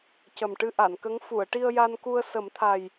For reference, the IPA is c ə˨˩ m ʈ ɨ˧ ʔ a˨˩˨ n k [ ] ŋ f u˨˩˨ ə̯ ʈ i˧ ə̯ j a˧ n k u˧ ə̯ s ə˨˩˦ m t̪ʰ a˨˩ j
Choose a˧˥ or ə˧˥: ə˧˥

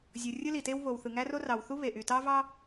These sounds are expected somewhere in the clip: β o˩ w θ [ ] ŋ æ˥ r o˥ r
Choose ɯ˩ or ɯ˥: ɯ˩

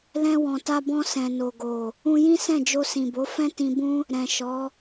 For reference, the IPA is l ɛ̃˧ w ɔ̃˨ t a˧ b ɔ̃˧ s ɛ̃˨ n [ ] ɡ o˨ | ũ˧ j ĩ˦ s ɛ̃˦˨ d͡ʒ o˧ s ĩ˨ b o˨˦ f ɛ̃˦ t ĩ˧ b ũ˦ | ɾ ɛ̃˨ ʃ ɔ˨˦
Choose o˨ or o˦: o˨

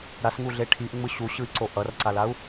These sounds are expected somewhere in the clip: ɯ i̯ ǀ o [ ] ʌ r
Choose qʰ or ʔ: ʔ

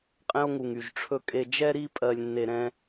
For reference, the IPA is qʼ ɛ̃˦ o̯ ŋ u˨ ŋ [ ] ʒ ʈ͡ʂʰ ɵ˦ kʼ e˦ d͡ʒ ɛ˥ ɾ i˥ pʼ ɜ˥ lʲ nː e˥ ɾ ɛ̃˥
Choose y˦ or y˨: y˨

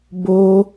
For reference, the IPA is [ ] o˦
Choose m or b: b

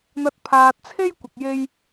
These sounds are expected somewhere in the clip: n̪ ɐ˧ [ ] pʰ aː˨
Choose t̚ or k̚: t̚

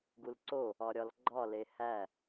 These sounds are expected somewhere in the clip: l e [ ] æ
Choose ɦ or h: h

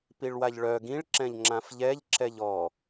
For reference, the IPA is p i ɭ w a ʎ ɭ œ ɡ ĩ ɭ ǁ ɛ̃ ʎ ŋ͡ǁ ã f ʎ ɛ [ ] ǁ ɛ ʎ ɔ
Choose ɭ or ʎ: ʎ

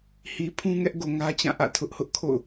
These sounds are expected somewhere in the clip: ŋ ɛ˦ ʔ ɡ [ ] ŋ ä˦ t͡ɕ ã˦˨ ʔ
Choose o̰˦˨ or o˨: o˨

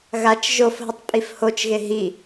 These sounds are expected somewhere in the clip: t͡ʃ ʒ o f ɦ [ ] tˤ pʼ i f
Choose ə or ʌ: ə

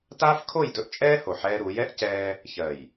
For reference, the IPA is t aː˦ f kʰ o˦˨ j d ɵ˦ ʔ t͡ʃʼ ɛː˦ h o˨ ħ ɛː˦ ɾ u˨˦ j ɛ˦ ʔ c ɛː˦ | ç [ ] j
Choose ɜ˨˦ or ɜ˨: ɜ˨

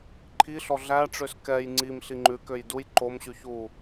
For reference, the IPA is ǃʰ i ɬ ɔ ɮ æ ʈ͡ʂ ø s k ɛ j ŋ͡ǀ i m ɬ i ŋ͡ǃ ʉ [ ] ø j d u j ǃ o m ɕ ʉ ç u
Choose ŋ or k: k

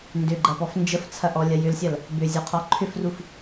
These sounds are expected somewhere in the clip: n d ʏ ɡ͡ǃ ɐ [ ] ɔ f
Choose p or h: p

